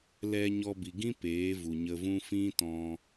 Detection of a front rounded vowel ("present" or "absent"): absent